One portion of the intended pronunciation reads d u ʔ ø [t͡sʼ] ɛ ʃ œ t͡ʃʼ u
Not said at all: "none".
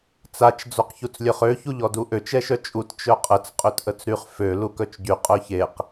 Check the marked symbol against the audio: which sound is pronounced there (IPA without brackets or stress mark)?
t͡ʃ